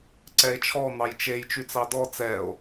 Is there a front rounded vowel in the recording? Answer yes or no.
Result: yes